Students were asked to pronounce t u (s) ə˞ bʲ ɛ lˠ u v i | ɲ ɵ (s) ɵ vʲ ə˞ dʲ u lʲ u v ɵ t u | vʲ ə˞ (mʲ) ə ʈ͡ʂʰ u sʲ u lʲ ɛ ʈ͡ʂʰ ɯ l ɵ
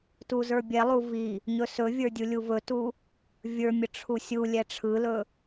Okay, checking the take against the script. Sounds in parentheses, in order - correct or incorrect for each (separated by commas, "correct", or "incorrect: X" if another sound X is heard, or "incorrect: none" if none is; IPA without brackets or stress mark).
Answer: incorrect: z, correct, correct